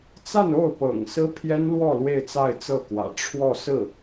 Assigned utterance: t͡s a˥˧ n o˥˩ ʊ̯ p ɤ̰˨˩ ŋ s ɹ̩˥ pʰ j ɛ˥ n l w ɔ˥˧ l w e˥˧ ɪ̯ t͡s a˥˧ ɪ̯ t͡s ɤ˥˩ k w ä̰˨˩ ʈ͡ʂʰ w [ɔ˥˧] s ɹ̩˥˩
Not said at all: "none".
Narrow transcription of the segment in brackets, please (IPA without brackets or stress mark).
ɔ˥˧